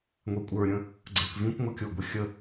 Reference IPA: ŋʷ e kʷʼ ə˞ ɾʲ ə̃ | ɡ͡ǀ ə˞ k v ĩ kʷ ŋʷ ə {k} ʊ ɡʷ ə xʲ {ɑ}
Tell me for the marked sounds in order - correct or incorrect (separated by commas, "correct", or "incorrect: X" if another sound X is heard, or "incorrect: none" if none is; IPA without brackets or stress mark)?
incorrect: kʲ, incorrect: ə